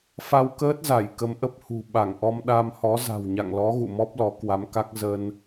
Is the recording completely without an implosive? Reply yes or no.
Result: no